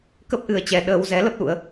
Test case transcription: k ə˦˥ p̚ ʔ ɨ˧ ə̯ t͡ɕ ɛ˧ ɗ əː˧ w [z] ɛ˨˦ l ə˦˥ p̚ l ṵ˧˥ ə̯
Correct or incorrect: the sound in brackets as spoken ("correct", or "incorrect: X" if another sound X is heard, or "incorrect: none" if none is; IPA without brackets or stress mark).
correct